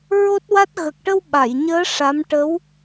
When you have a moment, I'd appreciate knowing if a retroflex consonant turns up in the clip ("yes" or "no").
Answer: yes